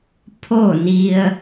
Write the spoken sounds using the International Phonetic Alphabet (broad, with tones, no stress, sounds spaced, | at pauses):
pʰ o˥˨ n i˧ ə̯